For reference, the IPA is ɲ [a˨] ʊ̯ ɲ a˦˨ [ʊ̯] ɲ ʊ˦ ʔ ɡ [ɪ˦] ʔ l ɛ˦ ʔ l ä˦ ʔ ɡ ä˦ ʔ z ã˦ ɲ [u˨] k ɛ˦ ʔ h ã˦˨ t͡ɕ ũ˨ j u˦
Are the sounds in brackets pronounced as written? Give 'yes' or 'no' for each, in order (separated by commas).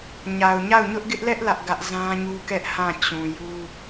yes, yes, yes, no